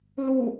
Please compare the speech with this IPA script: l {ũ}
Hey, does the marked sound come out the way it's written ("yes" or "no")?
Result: no